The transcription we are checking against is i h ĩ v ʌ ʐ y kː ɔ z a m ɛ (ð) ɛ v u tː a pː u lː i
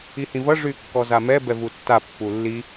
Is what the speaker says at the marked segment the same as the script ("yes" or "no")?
no